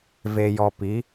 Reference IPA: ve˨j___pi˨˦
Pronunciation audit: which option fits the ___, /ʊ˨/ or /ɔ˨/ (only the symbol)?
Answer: ɔ˨